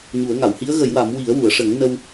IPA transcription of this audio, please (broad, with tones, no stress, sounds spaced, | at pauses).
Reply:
ɲ u˨˩˦ ə̯ ŋ a˨˩˨ w h i˧˥ ə̯ ɣ ə˨˩˦ j w a˨˩˦ m w i˨˩˦ ə̯ w u˨˩˨ ə̯ ʂ ə˨˩˦ ŋ n ə˧ w